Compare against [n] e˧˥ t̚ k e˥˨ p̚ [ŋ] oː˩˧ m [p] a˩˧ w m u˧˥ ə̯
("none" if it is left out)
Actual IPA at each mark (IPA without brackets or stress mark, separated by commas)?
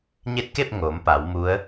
ɲ, ŋ, p